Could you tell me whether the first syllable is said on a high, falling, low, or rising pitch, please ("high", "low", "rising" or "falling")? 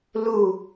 falling